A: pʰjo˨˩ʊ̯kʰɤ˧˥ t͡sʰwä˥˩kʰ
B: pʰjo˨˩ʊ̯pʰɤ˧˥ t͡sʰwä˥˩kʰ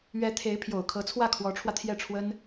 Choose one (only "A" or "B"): A